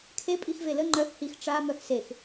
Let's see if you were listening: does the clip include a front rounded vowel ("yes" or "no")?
yes